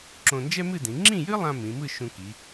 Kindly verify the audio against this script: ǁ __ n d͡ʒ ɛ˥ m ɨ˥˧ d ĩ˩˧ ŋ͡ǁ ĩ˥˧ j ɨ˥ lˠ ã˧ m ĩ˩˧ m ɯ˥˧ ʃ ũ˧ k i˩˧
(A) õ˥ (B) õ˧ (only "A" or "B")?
B